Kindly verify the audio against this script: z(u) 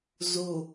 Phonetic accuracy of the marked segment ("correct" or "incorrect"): correct